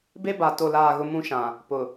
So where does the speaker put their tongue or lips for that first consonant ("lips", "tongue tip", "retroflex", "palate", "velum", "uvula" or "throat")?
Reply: lips